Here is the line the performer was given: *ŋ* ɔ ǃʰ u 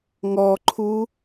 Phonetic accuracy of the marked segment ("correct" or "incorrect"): correct